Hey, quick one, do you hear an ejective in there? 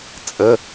yes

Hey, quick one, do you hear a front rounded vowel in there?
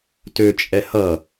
yes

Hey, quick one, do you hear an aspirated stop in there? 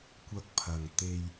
yes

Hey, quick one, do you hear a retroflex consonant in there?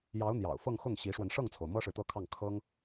yes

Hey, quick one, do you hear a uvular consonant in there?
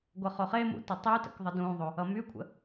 yes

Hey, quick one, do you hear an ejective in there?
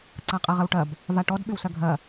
yes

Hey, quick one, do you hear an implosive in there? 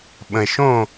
yes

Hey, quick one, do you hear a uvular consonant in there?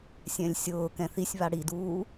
no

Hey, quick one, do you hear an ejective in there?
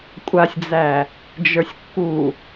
yes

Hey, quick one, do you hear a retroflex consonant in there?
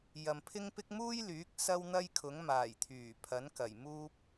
no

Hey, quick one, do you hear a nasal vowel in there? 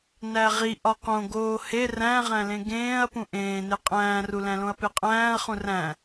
yes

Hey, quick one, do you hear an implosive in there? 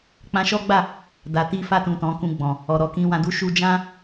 no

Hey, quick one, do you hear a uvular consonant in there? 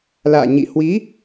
no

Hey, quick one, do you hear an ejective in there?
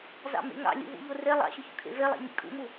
yes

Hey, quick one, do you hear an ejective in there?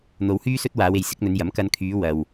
no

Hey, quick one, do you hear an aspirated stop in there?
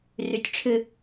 yes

